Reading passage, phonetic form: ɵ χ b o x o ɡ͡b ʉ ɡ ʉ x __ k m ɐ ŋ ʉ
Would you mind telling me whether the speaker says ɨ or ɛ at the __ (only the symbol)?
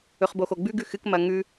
ɨ